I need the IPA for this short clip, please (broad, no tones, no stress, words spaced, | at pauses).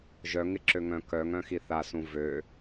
ʒœŋɪǁøŋœ̃ kœŋœ̃xi θasũ vø